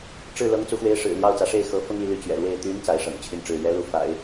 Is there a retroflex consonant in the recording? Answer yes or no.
yes